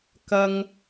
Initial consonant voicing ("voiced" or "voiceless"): voiceless